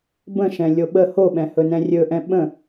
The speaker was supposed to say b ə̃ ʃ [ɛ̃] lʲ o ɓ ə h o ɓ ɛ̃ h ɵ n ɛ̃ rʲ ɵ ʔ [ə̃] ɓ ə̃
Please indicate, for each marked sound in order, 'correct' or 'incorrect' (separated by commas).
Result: correct, incorrect